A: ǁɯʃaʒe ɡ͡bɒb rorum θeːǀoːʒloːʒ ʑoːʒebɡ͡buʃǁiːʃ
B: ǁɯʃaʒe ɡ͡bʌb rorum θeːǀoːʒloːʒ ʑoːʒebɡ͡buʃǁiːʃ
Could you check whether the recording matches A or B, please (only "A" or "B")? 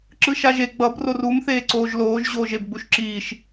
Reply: B